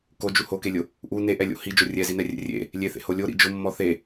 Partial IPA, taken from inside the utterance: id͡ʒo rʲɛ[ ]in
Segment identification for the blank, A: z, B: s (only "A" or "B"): A